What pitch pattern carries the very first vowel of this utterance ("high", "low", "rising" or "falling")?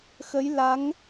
rising